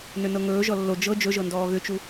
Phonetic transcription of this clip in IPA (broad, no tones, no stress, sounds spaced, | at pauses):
n ʏ n ɤ ŋ ɵː ʒ ɔ lː o d͡ʒ ɤ d͡ʒ ɵ ʒ ɤ n d ɔː ɣ ʏ t͡ʃ u